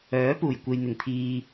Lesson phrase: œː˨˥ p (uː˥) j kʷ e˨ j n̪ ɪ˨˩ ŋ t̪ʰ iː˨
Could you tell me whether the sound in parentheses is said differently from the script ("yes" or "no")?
yes